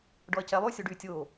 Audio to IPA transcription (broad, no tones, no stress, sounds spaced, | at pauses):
ɖ ɔ ɐ̯ c ɛ lˠ y sʲ o ɖ y tʲ oː